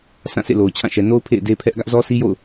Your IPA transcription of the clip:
sʰ ã˦˨ sʰ ḛ˦˨ l o˨ ʊ̯ t͡ɕʰ ã˦˨ ʃ ɛ˨ n o˦ ʊ̯ pʰ ḛ˦˨ ɪ̯ d e˦ pʰ ɛ˦ ʔ ɡ ä˦ ʔ z ɔ˦ s i˦ j o̰˦˨ ʊ̯

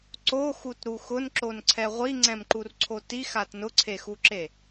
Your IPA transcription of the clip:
ǀ o x u t ɾ u x ʊ n ǁ o n ǀʰ ɛ ʁʷ i ŋ͡ǀ ɛ̃ m ǃ u r ǀʰ o t i x a t n ʊ ǀʰ e x u ǁ e

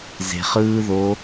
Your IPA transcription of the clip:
z e̤ χ ɯː ð o

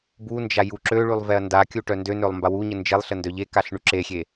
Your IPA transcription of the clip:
b u n d͡ʒ a j u ǁ ø ɭ y lˠ v ɛ ɐ̯ n d a kʲ u ʈ œ n d ø n ø lˠ m b a w u ɲ ə n d͡ʒ e lˠ ɬ ə n d œ ʎ e k a ɬ ɳ y ǁ e xʲ e

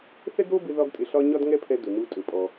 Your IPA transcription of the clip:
θ ɛ˥ ɡ ɾ o˥ b ɪ˧ ð ɒ˥ ɡ tʼ ɪ˧ ɬ ɒ˥ ɲ ɒ˥ d ŋ ɛ˥ pʰ ɛ˧ d ɵ˩ n u˧ tʼ ɵ˩ pʼ ɔ˩

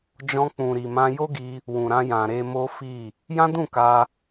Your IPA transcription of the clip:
d͡ʒ ɔ̃˧ k͡p ũ˨ ɾ i˨ m ã˧ j o˦ ɡ i˧ | w ũ˨ ɾ ã˧ j ã˨ ɾ e˧ m o˦ f i˦˨ | j ã˦ d ũ˦˨ k a˧

